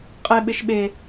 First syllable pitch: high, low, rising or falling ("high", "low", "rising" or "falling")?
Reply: low